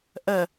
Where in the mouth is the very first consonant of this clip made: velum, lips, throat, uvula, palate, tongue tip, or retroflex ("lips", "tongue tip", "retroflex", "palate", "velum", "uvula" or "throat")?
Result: throat